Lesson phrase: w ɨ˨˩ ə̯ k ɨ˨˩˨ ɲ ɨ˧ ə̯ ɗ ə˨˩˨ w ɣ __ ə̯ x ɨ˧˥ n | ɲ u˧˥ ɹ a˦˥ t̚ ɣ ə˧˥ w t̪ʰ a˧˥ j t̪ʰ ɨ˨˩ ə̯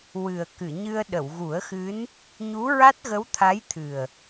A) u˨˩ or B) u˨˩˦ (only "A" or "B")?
B